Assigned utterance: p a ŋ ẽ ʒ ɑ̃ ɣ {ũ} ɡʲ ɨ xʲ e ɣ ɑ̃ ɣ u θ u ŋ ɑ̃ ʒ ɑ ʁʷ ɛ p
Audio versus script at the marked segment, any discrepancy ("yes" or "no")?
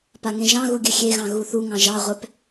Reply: yes